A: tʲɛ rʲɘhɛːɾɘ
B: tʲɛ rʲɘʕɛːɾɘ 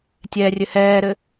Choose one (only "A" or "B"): A